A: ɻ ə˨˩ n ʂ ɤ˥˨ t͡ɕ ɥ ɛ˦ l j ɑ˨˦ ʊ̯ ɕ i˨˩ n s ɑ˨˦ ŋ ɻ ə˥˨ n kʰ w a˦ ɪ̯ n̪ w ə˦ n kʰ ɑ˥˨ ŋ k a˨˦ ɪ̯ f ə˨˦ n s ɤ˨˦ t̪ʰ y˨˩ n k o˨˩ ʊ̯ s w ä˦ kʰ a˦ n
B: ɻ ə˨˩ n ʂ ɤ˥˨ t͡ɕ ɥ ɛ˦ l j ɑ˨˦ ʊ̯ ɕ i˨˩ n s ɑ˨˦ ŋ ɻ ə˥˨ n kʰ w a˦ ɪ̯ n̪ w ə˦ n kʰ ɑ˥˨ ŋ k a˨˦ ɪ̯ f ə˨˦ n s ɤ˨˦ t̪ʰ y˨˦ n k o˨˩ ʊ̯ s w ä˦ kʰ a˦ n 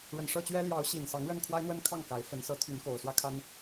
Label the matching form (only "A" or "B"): B